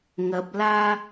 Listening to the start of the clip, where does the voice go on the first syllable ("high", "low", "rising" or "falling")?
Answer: low